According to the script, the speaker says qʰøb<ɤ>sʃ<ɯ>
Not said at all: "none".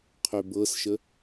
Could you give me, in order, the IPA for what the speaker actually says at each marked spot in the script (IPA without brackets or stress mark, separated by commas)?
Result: ɤ, ə